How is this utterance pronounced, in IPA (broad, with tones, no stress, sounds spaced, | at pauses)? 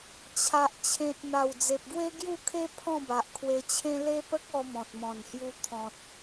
t͡ɕʰ a˨ ʔ t͡ɕʰ ẽ˨ t̚ n̪ a˨˩ w d͡z e˨ p̚ ɡ w e˦ ɡ j u˥˧ kʰ e˦ pʰ ɔ̃˥˧ b a˨ ʔ kʰ w e˧ t͡ɕʰ ẽ˦ l e˦ p ə˦ k̚ ɔ˧ m ɔ̃˨ t̚ m ɔ̃˨˩ n h j u˧ t̪ʰ ɔ̃˨ t̚